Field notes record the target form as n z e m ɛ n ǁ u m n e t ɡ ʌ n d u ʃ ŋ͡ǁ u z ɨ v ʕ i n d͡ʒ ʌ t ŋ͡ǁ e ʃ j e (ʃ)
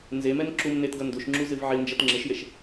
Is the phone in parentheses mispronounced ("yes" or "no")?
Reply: no